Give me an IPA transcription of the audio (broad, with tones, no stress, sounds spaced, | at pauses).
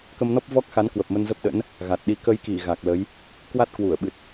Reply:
k ə˧ m n ɔ˦˥ p̚ v ɔ˦˥ k̚ x a˨˦ n k w ə˨˩ p̚ m ə˧ n z ə˦˥ p̚ ɗ ə̰˧˥ n | ɣ a˨˩ t̚ ɗ i˨˦ k ə˨˦ j k i˧˩ ɣ a˨˩ k̚ l ə˨˦ j | k w a˦˥ t̚ k w u˧˩ ə̯ ɓ ɨ˨˩ t̚